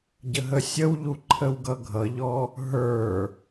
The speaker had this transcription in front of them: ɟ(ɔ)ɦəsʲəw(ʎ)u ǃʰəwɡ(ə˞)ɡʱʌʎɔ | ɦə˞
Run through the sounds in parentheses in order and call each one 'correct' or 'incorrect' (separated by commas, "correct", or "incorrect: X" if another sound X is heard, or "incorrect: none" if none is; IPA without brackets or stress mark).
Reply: incorrect: ə, correct, incorrect: ʌ